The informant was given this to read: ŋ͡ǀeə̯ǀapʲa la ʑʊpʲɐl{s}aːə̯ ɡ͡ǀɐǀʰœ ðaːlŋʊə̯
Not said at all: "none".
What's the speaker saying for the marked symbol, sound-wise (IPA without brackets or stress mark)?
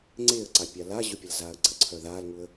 z